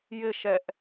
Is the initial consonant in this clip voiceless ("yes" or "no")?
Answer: no